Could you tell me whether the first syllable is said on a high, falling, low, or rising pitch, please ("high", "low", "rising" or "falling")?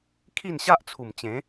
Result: falling